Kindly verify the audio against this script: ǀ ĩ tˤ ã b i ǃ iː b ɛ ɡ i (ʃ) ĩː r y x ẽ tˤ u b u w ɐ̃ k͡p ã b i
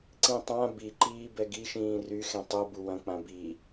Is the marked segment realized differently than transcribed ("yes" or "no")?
no